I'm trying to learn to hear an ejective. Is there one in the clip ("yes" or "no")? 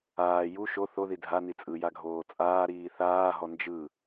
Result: yes